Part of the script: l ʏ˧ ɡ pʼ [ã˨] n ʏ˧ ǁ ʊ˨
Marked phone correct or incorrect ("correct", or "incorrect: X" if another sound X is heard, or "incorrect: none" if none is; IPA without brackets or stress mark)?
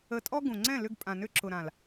correct